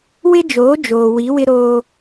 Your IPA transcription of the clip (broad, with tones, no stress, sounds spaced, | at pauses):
w ɪ˦ d͡ʒ oː˨˦ d͡ʒ oː˨ w i˨˦ w ɪ˦ ɾ oː˦